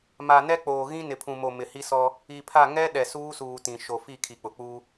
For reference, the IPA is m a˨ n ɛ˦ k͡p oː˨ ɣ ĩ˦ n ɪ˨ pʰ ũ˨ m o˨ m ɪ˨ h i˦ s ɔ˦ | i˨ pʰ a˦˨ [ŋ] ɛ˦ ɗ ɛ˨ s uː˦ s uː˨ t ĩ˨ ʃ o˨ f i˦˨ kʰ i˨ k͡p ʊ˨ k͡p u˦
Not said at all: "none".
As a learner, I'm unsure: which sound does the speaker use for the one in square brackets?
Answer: ŋ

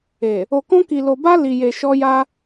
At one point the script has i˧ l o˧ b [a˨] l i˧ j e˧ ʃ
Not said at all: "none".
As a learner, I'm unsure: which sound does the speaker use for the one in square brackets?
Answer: a˦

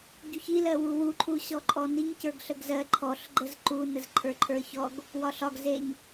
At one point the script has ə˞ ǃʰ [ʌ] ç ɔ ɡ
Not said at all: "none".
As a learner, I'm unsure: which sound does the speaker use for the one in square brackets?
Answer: ə˞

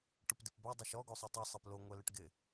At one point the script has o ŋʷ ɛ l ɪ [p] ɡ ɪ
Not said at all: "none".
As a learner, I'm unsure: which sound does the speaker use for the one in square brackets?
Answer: ʈ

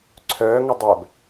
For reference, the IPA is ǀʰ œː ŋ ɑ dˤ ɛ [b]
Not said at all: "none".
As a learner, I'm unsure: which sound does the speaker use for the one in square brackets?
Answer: b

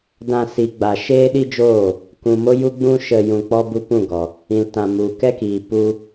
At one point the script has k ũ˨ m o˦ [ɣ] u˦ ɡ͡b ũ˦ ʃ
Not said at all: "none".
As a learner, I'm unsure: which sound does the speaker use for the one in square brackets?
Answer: j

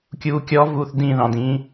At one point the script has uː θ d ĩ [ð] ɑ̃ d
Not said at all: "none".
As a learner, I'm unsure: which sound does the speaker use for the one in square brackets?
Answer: ð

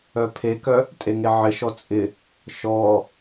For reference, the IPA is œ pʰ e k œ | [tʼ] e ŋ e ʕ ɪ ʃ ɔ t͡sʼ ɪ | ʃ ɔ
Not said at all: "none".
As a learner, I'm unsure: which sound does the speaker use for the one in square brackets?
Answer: tʼ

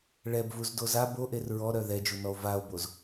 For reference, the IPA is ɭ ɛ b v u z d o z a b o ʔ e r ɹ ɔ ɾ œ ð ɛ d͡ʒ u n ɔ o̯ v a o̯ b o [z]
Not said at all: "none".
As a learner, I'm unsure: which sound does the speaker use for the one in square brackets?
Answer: z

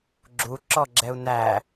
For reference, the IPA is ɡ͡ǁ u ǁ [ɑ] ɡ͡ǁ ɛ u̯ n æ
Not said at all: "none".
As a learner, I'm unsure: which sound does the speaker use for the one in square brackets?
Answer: ɔ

